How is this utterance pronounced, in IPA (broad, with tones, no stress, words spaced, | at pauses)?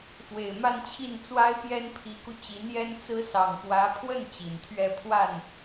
fwe˨˩ɪ̯ma˥˧nt͡ɕʰi˥˩n t͡swa˥ɪ̯pjɛ˥npʰi˧˥ku˧ t͡ɕi˧˥njɛ˥n t͡sɹ̩˥ sɑ˨˩ŋ pwä˧˥pʰwə˥˩n t͡ɕi˨˩nt̪ʰɥɛ˥˧ pʰwa˥˩n